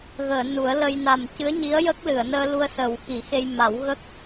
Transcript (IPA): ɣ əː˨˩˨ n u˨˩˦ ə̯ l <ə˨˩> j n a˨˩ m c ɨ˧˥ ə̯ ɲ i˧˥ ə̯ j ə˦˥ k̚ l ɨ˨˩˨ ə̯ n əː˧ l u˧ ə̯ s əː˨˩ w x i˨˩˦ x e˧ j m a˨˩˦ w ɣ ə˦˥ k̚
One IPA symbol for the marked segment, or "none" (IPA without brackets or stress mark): ə˧